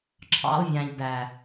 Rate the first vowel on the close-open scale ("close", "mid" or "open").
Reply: open